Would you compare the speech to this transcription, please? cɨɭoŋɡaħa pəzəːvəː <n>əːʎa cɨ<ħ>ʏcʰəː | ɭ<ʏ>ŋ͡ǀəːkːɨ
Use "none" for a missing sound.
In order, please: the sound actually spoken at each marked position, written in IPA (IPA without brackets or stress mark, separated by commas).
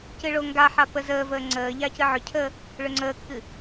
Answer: ŋ͡ǀ, ʕ, ʏ